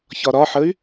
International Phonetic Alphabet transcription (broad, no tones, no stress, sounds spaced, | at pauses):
ç ɒ ɾ ɒ ħ ə y̯